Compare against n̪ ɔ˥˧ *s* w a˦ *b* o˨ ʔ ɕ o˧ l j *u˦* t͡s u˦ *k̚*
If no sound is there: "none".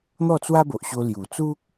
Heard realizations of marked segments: t͡s, b, u˨˩, k̚

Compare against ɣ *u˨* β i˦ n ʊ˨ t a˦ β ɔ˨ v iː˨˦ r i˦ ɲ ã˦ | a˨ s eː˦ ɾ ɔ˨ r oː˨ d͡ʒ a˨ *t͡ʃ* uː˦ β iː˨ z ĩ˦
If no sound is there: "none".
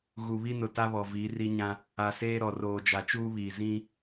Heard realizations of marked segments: u˨, t͡ʃ

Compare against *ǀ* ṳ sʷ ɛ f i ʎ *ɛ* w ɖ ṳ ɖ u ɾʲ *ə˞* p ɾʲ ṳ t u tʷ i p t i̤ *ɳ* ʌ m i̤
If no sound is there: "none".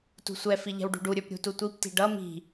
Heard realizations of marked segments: t, ɛ̤, ə˞, ɖ

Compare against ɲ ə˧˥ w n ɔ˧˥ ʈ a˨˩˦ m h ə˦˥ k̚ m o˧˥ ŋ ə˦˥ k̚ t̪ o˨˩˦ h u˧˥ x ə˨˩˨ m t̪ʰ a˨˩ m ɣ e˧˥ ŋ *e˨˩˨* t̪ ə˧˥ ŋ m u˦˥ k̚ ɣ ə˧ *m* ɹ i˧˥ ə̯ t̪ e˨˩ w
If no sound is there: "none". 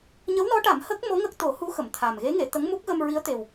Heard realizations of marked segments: e˨˩˨, m

